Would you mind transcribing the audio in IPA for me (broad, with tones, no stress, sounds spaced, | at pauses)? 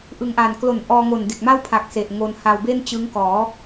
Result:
ʔ ɯ˨˩ ŋ ʔ aː˨˩ n k l o˨˩ n ʔ ɔː˧ ŋ o˨˩ n d e˨˩ k̚ m a˥˩ w pʰ a˨˩ k̚ s e˨˩ ʔ ŋ o˧ n h a˧ w b e˥˩ n t͡ɕ ɯ˦˥ ŋ k ɔː˩˦